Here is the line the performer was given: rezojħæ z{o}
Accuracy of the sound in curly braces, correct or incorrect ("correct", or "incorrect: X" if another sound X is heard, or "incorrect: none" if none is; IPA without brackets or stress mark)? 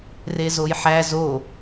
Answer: correct